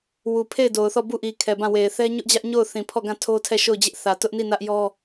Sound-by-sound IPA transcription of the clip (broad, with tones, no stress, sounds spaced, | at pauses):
w u˨ pʰ e˦˨ ɪ̯ d o˨ ʊ̯ θ ɔ˦˨ b u˦˨ ʔ i˨ kʰ ɛ˨ b ã˦˨ w e˨ ɪ̯ θ ɛ˦ ɲ ʊ˦ ʔ d͡ʑ ä˦ ʔ ɲ o˦˨ ʊ̯ θ ĩ˨ pʰ ɔ˦˨ ɡ ã˦˨ tʰ o˦ tʰ ɛ˦˨ ʃ o˦˨ ʊ̯ d͡ʑ ɪ˦ ʔ θ ä˨ t ʊ˦ ʔ n i˦˨ n ä˦ ʔ j ɔ˦